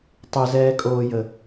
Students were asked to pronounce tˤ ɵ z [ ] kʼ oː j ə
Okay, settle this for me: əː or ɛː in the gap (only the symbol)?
ɛː